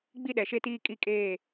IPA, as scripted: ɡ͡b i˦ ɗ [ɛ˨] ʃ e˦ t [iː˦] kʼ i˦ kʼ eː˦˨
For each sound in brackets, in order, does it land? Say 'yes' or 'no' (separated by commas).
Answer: yes, yes